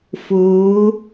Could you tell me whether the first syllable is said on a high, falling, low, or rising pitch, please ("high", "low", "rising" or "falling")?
rising